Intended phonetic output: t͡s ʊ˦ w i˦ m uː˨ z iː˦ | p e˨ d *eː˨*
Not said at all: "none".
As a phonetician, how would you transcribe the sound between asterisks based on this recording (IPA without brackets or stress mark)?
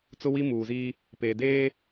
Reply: eː˦